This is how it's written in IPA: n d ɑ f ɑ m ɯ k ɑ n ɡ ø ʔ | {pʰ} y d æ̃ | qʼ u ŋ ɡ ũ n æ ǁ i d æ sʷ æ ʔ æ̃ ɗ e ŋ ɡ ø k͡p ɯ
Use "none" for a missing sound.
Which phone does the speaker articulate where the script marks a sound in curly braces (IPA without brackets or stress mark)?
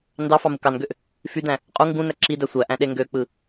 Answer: f